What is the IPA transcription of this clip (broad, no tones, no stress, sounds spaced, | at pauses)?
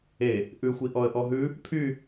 e | ʔ ʉ xʷ i ʔ ɔ ə̯ ʔ ɔ ɦ ʉ | pʰ y